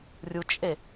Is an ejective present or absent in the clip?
present